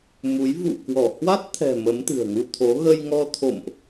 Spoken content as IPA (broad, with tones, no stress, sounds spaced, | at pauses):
m u˨˦ j v ṵ˧˨ k w ɔ˧˩ h w a˦˥ t̚ t̪ʰ ɛ̤˨˩ m ə˨˦ m t̪ ɨ̤˨˩ ə̯ ŋ u˧ t̪ʰ o˨˦ ɣ ə˧ j ŋ ɔ˧ t̪ʰ o̰˧˨ m ʔ